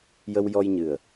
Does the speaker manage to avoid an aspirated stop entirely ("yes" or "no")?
yes